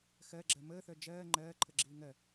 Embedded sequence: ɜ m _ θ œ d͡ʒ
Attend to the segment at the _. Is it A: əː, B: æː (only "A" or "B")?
A